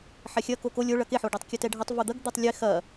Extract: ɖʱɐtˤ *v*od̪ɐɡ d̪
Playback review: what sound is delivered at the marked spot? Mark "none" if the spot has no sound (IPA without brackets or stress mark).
v